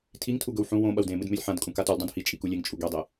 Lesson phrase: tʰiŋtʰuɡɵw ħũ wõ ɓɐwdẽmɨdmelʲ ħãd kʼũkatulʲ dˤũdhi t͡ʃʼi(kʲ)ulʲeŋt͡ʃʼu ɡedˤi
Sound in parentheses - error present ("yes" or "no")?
yes